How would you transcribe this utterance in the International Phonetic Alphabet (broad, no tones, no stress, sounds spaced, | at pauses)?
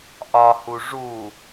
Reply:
ʔ ɒ h u ʐ u